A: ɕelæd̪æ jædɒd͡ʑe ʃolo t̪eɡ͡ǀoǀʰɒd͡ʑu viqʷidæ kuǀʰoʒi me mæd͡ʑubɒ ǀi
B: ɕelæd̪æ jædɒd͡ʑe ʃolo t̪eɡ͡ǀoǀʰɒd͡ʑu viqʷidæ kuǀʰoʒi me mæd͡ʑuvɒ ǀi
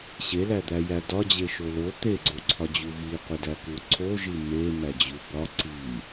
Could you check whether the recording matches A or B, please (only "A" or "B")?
A